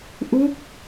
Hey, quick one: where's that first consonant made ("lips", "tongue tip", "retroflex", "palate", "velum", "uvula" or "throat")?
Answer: throat